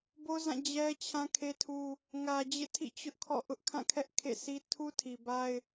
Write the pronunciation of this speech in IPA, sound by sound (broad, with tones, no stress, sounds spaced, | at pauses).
b o˦ z ã˦˨ d͡ʑ ɛ˦ t͡ɕʰ ã˦ kʰ e˦ tʰ u˦ | ŋ ä˨ d͡ʑ ḛ˦˨ tʰ ḭ˦˨ t͡ɕ ʊ˦ ʔ kʰ ɔ̰˦˨ ʔ ʊ˦ ʔ kʰ ã˦˨ kʰ ɛ˦ ʔ kʰ ḛ˦˨ sʰ i˦ tʰ u˦ tʰ i˨ b a˦ ɪ̯